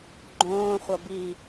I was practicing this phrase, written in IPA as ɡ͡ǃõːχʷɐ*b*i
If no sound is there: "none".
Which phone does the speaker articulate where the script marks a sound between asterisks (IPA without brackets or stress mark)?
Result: b